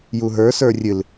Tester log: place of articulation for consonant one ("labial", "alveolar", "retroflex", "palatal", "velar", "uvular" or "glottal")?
palatal